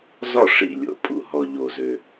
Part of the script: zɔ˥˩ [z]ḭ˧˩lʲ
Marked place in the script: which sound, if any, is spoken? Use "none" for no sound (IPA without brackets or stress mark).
ʂ